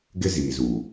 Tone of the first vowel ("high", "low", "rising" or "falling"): high